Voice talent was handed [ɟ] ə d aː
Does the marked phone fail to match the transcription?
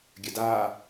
yes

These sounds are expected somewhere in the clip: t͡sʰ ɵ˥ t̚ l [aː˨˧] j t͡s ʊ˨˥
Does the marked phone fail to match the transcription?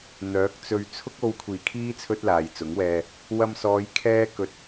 yes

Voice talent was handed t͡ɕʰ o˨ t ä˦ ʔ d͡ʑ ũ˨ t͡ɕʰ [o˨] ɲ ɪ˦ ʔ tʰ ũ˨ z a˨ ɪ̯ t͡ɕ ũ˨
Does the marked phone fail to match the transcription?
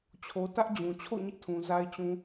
yes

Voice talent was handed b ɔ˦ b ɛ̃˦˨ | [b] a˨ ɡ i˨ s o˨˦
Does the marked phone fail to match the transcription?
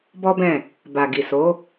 no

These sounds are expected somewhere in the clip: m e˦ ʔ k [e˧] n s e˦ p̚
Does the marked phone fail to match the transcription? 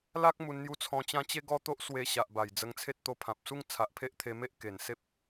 yes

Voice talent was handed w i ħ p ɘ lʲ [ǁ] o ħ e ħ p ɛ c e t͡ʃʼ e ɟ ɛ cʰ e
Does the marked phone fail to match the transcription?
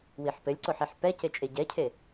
yes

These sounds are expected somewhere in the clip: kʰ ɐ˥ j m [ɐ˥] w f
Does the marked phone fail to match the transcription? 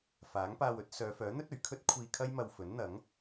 yes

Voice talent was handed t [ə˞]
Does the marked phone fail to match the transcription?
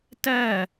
yes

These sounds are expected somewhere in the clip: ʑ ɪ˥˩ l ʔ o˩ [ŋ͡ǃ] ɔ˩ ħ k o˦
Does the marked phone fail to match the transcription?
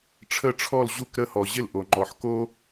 no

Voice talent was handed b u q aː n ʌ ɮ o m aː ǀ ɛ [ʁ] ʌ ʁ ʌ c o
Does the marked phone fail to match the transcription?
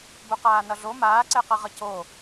yes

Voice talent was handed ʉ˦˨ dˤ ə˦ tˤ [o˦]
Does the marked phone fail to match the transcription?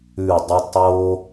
no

